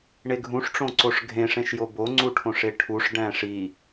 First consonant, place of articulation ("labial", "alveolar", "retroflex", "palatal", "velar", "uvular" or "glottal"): retroflex